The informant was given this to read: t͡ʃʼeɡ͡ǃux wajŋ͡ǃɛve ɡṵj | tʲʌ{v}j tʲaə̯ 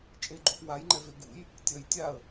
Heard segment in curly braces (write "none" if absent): none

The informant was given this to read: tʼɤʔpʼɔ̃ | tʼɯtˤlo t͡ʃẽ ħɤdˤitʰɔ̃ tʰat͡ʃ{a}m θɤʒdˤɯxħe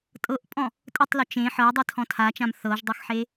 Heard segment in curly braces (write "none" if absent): ã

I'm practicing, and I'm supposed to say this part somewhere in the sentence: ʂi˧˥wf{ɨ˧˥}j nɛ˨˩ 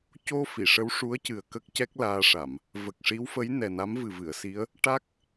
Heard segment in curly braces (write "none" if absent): ə˧˥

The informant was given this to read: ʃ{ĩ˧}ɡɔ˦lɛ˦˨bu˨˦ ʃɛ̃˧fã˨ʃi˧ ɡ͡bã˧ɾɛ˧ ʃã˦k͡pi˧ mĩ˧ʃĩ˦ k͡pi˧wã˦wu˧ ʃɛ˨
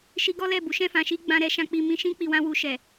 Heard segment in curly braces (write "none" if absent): i˧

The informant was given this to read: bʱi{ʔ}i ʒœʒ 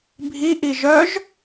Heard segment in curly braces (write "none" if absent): ʔ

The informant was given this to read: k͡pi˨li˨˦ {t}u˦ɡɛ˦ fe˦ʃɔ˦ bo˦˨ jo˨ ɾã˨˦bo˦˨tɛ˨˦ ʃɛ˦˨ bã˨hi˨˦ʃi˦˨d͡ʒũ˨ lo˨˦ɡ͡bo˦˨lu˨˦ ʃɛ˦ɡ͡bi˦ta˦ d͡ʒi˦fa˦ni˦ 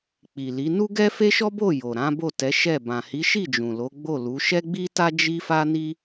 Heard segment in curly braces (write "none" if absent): n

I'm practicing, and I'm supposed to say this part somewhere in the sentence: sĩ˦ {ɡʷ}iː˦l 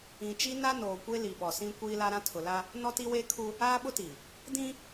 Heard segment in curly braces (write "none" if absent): kʷ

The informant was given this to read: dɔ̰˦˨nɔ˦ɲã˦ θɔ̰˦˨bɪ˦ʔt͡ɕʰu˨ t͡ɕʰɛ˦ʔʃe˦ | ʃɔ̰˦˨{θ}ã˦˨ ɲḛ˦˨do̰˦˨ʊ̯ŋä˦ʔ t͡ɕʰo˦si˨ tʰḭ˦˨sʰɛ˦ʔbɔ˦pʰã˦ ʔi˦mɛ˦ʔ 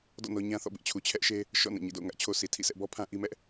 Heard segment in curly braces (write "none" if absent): n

